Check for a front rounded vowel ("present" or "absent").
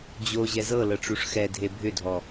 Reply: present